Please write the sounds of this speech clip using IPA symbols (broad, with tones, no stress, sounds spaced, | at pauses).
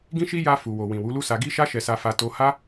ɡ ĩ˦ ʃ i˦ j a˧ f u˨ w o˨ w ĩ˨ w u˨˦ l u˦ s a˧ ɡ i˦ ʃ a˦ ʃ ɛ˧ s a˧ f a˧ t o˧ h a˦